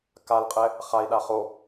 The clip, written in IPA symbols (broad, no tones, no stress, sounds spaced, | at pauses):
k a l qʼ ɛ | χ a i̯ ɗ a χ o